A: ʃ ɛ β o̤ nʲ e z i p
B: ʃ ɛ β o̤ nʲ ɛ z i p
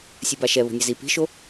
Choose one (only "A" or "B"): B